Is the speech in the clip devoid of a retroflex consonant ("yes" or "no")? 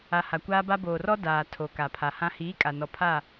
yes